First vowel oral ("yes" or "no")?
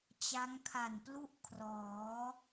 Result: yes